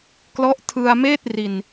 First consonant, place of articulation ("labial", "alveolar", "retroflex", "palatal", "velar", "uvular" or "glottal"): velar